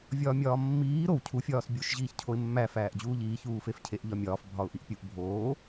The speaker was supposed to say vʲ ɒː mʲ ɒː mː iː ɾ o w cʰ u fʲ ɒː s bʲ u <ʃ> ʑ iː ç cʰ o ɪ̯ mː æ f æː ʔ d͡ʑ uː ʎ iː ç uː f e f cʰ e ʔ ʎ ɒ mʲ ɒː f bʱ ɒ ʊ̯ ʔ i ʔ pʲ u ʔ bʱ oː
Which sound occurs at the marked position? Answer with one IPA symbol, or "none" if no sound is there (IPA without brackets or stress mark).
ʃ